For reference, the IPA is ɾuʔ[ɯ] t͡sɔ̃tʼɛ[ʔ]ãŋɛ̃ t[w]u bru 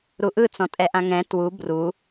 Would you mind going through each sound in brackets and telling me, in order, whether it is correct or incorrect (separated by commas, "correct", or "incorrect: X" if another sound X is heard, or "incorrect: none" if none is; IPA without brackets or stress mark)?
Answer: correct, correct, correct